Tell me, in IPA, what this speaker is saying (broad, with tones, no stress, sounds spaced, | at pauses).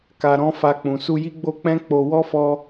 k a˧ ɾ ɔ̃˦ f a˧ k͡p ũ˨ s u˧ j i˦ ɡ͡b o˦ k͡p ɛ̃˦ k͡p o˧ w ɔ˦ f ɔ˧